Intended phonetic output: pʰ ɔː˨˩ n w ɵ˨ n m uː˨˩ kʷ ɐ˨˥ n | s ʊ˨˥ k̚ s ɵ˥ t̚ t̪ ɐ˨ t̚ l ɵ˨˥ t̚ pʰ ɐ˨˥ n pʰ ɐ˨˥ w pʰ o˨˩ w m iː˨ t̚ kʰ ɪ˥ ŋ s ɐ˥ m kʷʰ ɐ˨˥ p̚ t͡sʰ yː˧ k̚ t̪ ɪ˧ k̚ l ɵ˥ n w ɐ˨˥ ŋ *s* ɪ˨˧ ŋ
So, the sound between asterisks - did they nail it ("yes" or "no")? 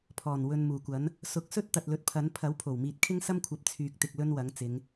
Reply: no